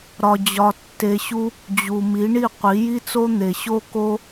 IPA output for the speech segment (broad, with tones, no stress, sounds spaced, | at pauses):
ɾ ɒ˧ d͡ʑ ɒ˧ tː e˧ ɕ u˦ | d͡ʑ u˨ m i˨˦ ɳ i˦˨ qʷ i˨˦ j i˦ t͡s o˦ n̪ e˨ ɕ o˦ k o˦